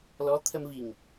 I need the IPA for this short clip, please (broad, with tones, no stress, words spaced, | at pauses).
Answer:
lɔ˧˥t̪ʰə˧mvi˨˩ŋ